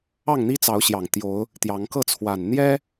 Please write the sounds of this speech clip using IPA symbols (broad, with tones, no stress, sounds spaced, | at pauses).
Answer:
ɑ˥˨ ŋ n̪ i˦ t͡s ɑ˨˦ ʊ̯ ɕ j ɑ˨˩ ŋ t̪ j o˨˦ ʊ̯ | t̪ j ɑ˨˦ ŋ k ɤ˥˨ t͡sʰ w a˨˩ n n̪ j ɛ˦